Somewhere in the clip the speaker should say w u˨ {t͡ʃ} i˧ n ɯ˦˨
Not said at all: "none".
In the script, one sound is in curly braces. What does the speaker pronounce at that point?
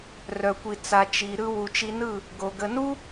t͡ʃ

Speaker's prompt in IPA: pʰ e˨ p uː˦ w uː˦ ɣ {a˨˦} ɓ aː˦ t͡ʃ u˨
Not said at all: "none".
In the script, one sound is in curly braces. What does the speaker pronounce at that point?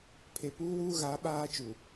a˨˦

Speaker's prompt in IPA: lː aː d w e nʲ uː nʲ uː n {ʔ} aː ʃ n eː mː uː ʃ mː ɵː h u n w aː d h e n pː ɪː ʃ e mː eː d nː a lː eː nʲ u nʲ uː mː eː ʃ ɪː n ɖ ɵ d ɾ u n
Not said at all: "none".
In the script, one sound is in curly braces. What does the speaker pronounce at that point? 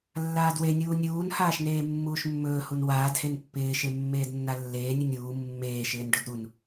h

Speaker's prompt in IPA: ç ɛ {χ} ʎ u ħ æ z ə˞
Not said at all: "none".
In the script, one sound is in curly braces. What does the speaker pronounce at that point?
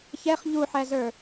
χ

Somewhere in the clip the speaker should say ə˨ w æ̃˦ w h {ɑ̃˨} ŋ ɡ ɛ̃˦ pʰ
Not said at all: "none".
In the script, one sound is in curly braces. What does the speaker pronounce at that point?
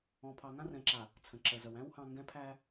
ɑ̃˨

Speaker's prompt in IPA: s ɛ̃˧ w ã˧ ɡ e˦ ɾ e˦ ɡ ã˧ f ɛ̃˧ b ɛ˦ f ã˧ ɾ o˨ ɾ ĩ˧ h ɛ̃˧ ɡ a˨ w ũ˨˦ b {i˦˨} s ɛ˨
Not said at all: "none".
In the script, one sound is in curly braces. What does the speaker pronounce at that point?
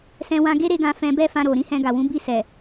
i˦˨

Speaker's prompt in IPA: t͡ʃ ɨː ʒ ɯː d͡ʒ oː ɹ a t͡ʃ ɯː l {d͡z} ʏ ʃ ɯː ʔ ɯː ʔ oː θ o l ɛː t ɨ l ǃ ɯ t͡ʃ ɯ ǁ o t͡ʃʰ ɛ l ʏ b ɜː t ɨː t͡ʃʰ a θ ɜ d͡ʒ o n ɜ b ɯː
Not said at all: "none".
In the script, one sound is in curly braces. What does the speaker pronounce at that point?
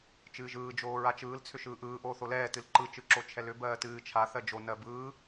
t͡sʰ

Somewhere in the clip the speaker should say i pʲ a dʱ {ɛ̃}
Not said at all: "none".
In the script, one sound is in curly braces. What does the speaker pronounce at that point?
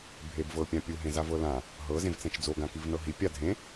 ẽ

